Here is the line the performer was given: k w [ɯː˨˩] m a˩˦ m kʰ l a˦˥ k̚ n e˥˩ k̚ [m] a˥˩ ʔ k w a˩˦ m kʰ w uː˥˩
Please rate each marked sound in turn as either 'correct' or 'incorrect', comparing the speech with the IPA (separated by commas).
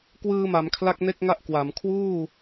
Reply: incorrect, incorrect